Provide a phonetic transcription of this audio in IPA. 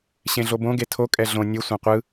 ɕẽɮobõ ɡetʰo kʼɛɮõ nʲɯ sʷãqʷɯ

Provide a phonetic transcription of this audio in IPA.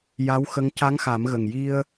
ja˧˥wxə˧˥ŋ ca˧˥ŋxa˨˩˦mɣə˨˩ŋ ji˧ə̯

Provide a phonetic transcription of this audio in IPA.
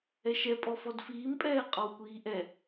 ɛʃɛ pʼɔfɔdfiːm pʼɛːqʼɔwkʷiːʔɛ

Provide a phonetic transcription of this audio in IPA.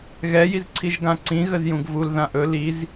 ɣɛjizǀʰiʒ ɡãǀĩ ɣəzjũɡvul ðãʔɵ liz

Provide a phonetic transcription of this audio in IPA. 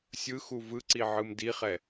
sʲɯxu vɯǀiʕɯm diχɛ

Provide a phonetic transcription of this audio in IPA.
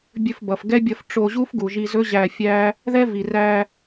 bʲɵ˧fbʌ˨fɡɛ˦bʲʌ˧f ʈ͡ʂo˧ʑu˦fɡu˨ʒi˧ zɵ˦ʑæ˧fʲæ˦ | ðɛ˦vi˨ræ˧

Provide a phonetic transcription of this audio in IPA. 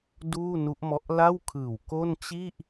duː˥˩nu˦˥ʔmɔ˦˥ʔ la˥˩wkʰɯː˨˩w ko˥˩n t͡ɕi˥˩ʔ

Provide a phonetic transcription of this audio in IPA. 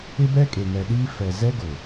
ɪ˦bɛ˦ kʼe˨ŋɛ˨ɗiː˦ fɛ˨ zɛ˦ɡʊ˨

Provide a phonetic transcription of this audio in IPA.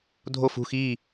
dʱof ṳx i

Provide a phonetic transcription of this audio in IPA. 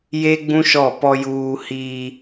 je˦ɡ͡bũ˦ʃɔ˦˨ pɔ˦juː˦ hiː˦

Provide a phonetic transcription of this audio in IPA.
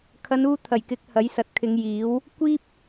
kʰɐ˨˧nuː˧t̪ʰɐ˨˩jkɪ˨˥k̚ hɐ˨˥jsɐ˨˥t̚kʰɪ˨˧ŋ jiː˨˥w | kʷiː˥p̚

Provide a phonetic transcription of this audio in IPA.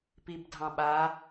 pibdʱɑ̃ɓa

